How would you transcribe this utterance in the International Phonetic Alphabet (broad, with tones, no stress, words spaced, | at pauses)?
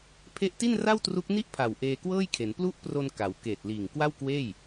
pʰe˦˥ʔti˥˩nra˥˩wtru˦˥k̚ ni˥˩ʔpʰa˨˩w ʔeː˧kwɤː˥˩jkʰe˩˦n plu˦˥ʔpro˧n ka˩˦w keː˨˩t̚liː˨˩ŋ kwa˥˩wkweː˥˩j